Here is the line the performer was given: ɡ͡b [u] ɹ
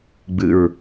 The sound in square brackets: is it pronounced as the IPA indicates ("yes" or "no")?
no